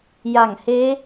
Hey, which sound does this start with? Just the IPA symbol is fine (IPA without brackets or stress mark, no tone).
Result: j